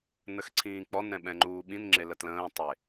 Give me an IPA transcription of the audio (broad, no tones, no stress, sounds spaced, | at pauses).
n ə x ǀʰ ĩː k͡p ɔ n ɾ ɛ̃ ɓ ɛ̃ ŋ͡ǃ uː ɓ ĩ n ŋ͡ǁ e l ə t l ə̃ː tˤ e